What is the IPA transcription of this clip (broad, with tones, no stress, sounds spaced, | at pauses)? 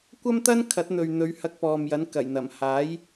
kʷ ɐ˥ m t̪ ɐ˥ n kʰ ɐ˨˥ t̚ n̪ ɵ˨ ɥ n̪ ɵ˨˧ ɥ h ɐ˧ k̚ p ɔː˨ m j ɐ˨˥ n k ɐ˨˩ j n̪ ɐ˨˩ m h aː˨˥ j